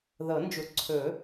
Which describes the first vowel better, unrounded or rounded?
unrounded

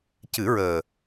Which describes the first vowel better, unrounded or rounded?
unrounded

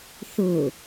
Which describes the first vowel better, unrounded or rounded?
rounded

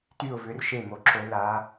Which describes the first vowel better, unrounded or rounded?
rounded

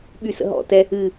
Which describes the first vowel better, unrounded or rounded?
rounded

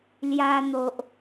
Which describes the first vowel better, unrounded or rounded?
unrounded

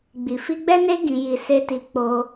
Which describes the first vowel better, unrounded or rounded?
unrounded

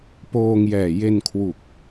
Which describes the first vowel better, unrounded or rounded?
rounded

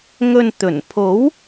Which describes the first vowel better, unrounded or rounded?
rounded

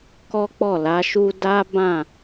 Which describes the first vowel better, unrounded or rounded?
rounded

